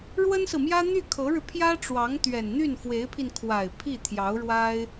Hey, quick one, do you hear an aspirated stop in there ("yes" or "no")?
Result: yes